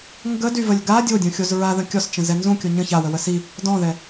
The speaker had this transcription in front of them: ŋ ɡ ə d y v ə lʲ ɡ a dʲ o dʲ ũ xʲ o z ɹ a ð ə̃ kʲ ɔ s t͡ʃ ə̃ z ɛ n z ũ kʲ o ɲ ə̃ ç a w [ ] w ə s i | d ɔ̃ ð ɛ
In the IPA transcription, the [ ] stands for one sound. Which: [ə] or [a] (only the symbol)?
ə